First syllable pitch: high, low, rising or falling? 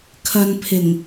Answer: low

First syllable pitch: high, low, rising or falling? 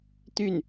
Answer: falling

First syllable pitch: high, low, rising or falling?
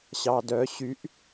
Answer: low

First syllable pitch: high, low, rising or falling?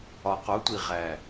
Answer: low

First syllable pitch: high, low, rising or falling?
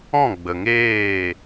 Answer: falling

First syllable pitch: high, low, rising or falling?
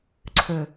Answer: low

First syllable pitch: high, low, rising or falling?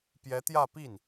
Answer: rising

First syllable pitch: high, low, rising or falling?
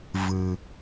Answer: low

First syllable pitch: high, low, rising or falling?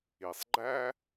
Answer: low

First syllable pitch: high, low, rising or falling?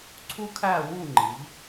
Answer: high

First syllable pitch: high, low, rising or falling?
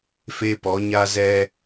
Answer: high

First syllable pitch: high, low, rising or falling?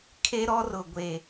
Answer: high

